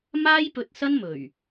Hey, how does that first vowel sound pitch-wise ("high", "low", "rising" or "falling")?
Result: high